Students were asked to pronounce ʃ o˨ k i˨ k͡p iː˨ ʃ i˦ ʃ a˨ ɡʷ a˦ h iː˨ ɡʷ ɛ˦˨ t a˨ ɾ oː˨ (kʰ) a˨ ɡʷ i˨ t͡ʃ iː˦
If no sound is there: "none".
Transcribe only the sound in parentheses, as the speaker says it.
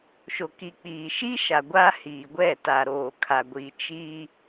kʰ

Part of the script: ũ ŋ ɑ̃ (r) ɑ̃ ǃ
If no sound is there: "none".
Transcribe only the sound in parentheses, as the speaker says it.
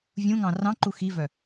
r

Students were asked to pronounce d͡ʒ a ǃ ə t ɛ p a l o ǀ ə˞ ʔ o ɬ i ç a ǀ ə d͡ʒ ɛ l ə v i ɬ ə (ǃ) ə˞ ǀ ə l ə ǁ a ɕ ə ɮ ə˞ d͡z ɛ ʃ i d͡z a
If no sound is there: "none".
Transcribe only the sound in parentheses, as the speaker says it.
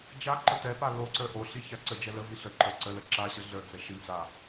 ǃ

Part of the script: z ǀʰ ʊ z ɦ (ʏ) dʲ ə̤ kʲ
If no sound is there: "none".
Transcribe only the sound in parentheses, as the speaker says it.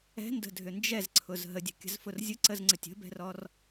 ə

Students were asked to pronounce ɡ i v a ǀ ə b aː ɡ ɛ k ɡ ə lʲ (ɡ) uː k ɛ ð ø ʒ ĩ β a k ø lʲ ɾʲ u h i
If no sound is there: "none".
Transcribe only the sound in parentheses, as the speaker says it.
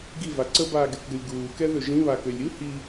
ɡ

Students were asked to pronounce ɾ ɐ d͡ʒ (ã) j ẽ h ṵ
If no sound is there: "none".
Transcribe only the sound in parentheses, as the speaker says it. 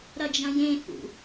ɐ̃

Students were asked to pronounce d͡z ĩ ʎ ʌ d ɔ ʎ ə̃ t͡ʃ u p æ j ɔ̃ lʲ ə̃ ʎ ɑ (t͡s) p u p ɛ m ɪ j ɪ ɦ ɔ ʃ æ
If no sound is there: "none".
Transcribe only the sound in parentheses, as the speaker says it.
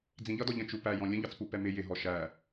t͡s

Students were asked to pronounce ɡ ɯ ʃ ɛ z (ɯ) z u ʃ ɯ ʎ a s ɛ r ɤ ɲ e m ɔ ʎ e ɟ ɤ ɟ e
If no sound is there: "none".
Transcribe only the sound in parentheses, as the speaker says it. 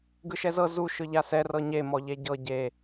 ɤ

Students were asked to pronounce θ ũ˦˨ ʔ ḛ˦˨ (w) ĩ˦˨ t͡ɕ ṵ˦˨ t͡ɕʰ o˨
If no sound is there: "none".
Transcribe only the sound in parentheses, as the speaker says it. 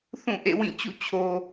w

